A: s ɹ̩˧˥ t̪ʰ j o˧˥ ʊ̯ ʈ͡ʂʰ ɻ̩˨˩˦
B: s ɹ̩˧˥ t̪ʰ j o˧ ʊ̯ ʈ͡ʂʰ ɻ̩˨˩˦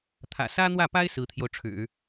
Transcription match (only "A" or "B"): B